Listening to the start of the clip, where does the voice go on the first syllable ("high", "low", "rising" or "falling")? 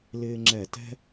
high